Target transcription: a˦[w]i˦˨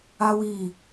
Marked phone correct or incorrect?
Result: correct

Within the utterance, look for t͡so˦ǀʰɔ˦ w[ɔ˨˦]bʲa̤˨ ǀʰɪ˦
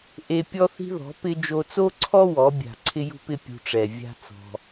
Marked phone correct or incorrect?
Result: correct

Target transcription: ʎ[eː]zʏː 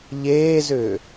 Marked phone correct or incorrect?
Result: correct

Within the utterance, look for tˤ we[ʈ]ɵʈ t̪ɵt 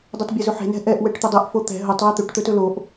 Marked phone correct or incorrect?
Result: incorrect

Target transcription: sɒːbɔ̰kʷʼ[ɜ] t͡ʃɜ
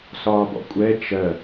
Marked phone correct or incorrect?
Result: incorrect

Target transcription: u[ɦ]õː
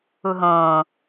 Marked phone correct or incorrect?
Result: correct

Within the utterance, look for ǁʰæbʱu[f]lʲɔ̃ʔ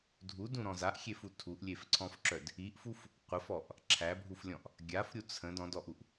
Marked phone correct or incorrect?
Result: correct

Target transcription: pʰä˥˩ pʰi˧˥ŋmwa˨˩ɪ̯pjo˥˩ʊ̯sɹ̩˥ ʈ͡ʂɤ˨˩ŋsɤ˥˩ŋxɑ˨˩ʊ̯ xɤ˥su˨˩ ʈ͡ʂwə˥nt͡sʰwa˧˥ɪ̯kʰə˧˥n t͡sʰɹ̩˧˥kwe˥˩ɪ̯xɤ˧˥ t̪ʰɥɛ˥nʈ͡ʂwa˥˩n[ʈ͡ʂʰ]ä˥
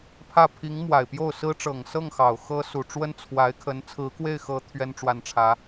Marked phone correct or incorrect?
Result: correct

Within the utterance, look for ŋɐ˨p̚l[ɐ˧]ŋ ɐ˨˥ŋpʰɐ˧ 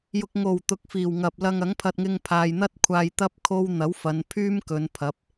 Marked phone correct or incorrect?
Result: correct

